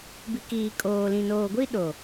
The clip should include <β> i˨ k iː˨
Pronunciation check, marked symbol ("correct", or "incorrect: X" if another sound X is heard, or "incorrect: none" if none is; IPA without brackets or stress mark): incorrect: b